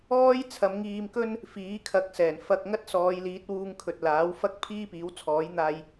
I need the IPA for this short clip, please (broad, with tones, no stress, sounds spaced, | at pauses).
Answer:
ɔː˥ j t͡sʰ ɐ˨˧ m ŋ iː˧ m k ɵ˥ n | f iː˨˥ kʰ ɐ˨˥ k̚ s ɛː˨˩ n f ɐ˧ k̚ ŋ ɐ˥ t̚ s ɔː˨˧ j l iː˨˥ t̚ w uː˧ ŋ kʰ ɵ˨ t̚ l aː˨˥ w f ɐ˥ k̚ pʰ iː˥ p iː˨˥ w t͡sʰ ɔː˨˥ j n̪ aː˧ j